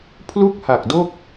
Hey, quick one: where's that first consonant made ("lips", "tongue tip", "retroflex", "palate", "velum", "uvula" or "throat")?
lips